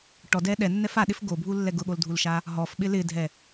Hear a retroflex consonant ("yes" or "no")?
yes